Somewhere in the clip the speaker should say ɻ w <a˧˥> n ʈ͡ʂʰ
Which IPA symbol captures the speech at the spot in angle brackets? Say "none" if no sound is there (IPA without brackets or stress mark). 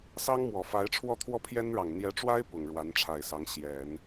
a˧˥